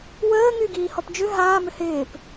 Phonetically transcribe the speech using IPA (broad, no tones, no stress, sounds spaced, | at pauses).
w əː ŋ y ɡ iː h ɔ p d͡ʒ ʏ ɦ aː m ʏ h ɪː p